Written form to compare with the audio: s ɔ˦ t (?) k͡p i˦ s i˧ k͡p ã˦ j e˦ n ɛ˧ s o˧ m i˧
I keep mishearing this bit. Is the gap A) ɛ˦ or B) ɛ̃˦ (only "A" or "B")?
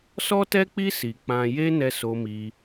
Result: A